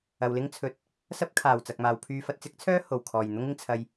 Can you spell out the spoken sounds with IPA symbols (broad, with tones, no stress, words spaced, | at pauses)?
ɐ˨wlɪ˥ŋt͡sʰɵ˨t̚ | sɐ˥p̚kʰaː˨˩w t͡sɐ˨k̚maː˨wpʰyː˧ fɐ˨t̚t͡sɪ˥k̚t͡sʰœː˥ ho˨˩wkʰɔː˨˩jn̪ʊ˥ŋɪ˨ŋ t͡sʰɐ˨j